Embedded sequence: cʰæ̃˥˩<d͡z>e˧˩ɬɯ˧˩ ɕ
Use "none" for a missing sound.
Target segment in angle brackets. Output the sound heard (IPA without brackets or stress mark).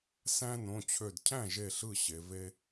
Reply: ʒ